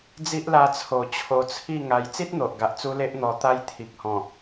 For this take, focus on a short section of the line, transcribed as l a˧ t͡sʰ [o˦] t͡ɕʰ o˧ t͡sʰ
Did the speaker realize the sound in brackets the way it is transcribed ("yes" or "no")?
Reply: no